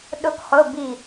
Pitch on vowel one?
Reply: falling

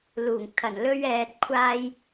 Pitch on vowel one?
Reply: low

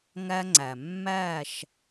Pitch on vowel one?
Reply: high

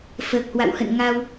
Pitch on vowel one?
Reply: low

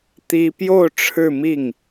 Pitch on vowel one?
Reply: high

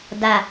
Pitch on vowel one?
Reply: low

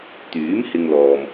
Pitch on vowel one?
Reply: rising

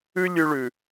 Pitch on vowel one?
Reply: high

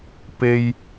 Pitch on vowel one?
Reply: high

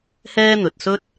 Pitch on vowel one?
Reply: high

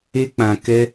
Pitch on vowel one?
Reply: high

